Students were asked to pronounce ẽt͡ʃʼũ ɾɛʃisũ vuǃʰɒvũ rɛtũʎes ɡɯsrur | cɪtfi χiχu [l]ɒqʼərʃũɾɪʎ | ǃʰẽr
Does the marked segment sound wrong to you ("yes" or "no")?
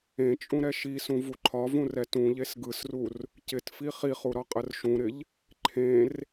yes